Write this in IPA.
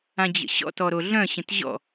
ã d͡ʑ ə̰ ɕ ɔ̰ t ɔ ɾ o ɮ œ̃ ɕ ə̃ t ʑ ɔ̰

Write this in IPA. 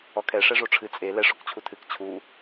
ɔ kʰ ɛ ʂ ɛ ʐ o ʈ͡ʂʰ ɨ t͡sʼ e l ɛ ʂ o k t͡ɕʰ u tʰ ɨ k t͡ɕʰ u

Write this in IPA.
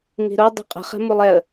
ŋ i̤ ɾ o dˤ i̤ qʼ ə̤ χ ɛ̤ m u lˠ ɛ ə̯

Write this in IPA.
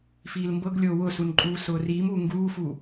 f iː l m b ɤ ɡ lʲ oː w ʊː s u n ǃʼ uː s ʊː r iː m uː ŋ ɡ uː f u

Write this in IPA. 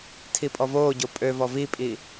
tʰ i pʼ ɔ v oː ɟ o pʼ ø v ɔ v i pʼ i

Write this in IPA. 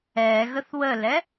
ɛ ɣ ə θ w ə l ɛ

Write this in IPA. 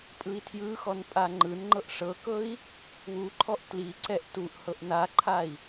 pʼ ɯ i̯ tʰ j ɯ x ɔ n pʼ a ŋ͡ǃ ɯ n ŋ͡ǃ ɤ ʔ ʂ ɤ k ɤ i̯ | w u ǃʰ ɔ ʔ t l i ǀ ɛ ʔ t u ʔ h ɤ ʔ n a ǃʰ a i̯

